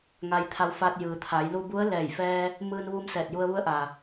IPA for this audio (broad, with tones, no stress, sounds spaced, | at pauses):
ŋ a˧ j t̪ʰ a˧ w f a˧ t̚ j ɯː˩ t̪ʰ a˩˧ j l u˧ b u˧˥ ə̯ l ɛː˧˩ j f ɛː˧ | m ɯː˧ n ʋ u˧ m s ɛː˧˩ t̚ j u˧ ə̯ ʋ u˧˥ ə̯ ʔ a˩